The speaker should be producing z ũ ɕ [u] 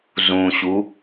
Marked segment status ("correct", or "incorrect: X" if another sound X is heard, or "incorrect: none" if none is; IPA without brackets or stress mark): correct